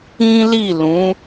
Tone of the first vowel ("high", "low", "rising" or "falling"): high